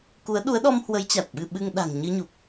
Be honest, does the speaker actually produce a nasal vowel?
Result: no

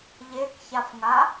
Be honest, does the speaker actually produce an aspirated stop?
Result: no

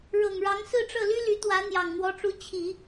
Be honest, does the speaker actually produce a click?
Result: no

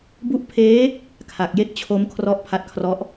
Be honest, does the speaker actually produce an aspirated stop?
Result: yes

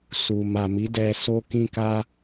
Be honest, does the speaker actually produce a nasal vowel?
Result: yes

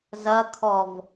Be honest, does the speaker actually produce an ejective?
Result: no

